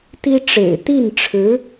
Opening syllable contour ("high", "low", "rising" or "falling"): high